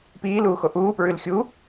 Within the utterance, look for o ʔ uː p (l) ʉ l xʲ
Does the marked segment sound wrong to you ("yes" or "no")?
yes